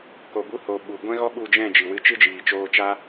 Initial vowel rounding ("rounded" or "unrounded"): rounded